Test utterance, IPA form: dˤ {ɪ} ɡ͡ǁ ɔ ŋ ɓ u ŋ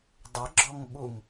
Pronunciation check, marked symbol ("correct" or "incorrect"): correct